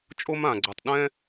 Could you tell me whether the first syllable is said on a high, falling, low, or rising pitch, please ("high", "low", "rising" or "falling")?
high